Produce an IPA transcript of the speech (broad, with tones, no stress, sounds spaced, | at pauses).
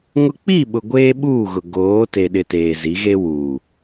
ŋ ʊ˦ k͡p i˦˨ ɓ ʊ˨ ɡʷ eː˦ ɓ uː˦˨ ɣ ʊ˨ ɡ oː˨˦ t e˨ ɗ ɪ˨ t eː˨ z i˨˦ ɣ e˦ w u˨